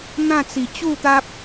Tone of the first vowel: falling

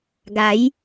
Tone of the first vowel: rising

